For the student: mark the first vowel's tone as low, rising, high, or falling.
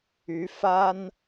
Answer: rising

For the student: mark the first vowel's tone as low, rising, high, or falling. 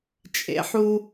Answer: low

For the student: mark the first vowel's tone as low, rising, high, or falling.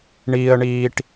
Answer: low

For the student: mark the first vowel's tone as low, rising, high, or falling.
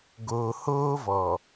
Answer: low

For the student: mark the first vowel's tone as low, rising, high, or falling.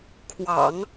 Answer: low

